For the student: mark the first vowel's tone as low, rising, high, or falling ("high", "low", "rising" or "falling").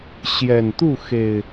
low